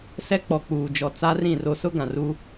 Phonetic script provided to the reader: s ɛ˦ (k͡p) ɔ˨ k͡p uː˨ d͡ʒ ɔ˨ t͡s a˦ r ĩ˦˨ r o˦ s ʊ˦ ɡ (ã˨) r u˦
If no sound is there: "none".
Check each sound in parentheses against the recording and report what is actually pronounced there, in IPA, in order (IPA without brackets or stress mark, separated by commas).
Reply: k͡p, ã˨